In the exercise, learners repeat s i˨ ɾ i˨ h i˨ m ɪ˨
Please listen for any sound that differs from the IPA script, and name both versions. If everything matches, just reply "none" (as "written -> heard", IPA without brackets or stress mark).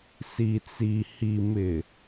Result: ɾ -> t͡s